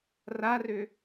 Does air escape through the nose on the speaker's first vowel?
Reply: no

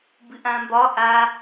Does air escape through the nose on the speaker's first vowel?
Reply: no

